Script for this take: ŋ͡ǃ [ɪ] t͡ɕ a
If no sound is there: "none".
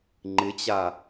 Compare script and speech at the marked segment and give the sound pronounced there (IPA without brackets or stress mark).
ɪ